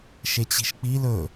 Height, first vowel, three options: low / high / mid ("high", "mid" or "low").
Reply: mid